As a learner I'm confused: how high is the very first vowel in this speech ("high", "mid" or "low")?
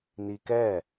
high